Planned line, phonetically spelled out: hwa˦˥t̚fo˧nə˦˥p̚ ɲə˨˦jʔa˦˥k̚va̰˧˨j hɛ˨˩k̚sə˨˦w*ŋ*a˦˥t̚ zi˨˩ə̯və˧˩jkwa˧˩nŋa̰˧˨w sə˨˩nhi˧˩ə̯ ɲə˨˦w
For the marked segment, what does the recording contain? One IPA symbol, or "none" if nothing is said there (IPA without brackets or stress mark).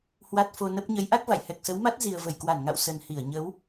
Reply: m